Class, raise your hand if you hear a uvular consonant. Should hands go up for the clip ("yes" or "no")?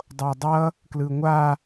no